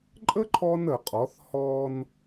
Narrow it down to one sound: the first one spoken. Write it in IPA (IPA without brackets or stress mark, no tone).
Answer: ǃʼ